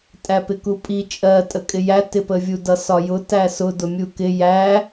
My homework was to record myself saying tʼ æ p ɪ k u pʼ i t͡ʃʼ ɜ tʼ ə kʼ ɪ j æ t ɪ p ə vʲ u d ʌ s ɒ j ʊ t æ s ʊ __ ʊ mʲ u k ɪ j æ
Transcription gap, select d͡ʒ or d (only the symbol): d